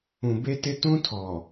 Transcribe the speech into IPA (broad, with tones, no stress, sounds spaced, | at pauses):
ũ˨ b e˦ t ɪ˦ t ũ˦ tʰ ɔ˨